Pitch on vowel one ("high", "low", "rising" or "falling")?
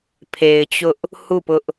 low